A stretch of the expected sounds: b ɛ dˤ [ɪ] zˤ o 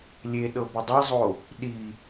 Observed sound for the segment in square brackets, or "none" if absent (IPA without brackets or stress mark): ɛ